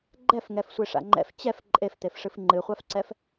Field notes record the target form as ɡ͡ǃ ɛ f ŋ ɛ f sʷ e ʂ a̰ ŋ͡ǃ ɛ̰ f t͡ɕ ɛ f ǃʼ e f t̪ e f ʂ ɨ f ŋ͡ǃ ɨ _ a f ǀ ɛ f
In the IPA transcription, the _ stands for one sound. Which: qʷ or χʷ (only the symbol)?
χʷ